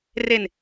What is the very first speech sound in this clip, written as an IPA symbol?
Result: r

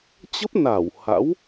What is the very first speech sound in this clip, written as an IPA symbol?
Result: t͡ɕ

